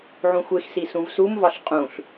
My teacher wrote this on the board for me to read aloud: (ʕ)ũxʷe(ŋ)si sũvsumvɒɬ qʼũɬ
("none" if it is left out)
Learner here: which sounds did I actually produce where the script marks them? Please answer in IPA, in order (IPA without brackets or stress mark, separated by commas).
ʕ, x